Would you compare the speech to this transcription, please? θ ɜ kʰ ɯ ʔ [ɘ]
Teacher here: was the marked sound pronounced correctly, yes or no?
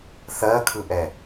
no